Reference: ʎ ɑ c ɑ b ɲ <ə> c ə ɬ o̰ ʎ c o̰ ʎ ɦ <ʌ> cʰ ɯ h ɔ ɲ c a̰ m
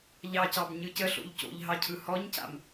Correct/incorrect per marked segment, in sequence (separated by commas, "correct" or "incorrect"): incorrect, incorrect